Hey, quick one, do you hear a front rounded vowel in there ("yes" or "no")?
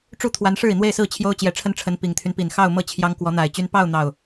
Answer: yes